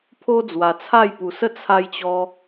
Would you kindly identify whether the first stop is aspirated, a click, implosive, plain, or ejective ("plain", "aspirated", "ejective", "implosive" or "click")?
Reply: aspirated